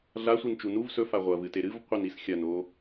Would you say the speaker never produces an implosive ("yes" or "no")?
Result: yes